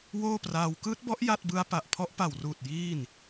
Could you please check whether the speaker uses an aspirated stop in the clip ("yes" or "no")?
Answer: yes